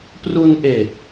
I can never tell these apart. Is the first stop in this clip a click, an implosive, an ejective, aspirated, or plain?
plain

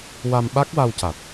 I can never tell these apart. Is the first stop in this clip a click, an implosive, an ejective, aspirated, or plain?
implosive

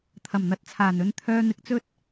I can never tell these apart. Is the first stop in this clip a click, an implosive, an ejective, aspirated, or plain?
aspirated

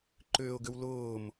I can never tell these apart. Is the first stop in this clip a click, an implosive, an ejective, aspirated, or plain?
click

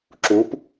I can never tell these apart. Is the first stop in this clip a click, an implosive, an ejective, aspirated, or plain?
click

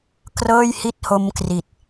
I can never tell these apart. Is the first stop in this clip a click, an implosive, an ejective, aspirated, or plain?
plain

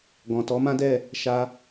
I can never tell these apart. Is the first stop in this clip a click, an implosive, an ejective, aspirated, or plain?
plain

